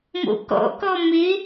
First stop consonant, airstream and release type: plain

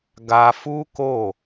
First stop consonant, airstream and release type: plain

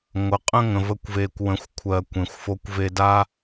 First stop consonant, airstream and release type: ejective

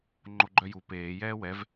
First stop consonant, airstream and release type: click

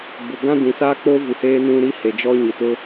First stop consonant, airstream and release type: plain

